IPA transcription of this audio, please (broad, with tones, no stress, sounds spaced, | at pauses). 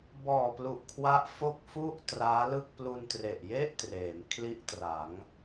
b ɔː˨˩ p l u˨˩ ʔ kʰ w a˦˥ ʔ f o˥˩ k̚ f u˥˩ ʔ t r aː˦˥ l ɯ˥˩ k̚ p l u˧ n t r e˨˩ ʔ j e˥˩ ʔ t r eː˩˦ m kʰ l i˥˩ ʔ t r a˩˦ ŋ